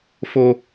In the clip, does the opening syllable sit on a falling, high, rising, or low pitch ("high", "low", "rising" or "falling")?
high